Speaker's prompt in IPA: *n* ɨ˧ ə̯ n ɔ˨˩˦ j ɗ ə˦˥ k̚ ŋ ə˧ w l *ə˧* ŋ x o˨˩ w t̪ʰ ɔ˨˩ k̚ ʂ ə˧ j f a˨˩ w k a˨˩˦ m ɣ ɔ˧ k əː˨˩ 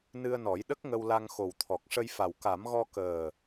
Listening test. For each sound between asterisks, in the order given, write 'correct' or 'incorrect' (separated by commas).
correct, incorrect